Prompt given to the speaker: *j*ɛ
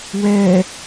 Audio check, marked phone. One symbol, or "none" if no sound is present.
w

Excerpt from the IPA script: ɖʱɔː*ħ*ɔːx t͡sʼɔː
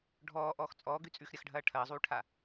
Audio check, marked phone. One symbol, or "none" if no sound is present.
ʔ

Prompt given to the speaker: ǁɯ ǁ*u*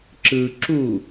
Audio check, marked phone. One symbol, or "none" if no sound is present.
u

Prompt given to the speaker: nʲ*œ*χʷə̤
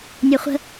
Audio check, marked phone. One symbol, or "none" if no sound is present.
œ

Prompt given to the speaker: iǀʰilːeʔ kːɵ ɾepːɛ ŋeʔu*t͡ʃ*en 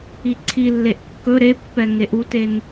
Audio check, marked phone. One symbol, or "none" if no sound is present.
t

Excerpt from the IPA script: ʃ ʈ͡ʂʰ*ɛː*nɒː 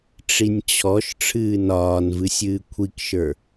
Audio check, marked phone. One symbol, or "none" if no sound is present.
ɨː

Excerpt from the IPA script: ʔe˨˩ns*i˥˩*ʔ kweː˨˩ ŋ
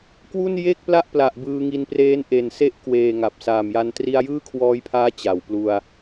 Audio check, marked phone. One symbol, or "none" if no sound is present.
e˥˩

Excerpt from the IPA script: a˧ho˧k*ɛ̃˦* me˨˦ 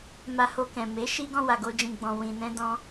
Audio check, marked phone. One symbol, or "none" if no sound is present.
ɛ̃˨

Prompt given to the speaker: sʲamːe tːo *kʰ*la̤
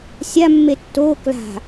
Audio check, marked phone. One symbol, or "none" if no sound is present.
k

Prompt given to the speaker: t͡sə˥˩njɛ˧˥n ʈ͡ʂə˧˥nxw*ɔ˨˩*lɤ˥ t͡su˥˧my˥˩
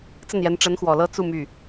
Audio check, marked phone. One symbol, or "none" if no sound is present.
ɔ˨˩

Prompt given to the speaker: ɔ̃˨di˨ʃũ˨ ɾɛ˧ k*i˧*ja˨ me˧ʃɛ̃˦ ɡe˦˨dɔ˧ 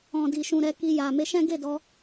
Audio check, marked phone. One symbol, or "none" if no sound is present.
i˧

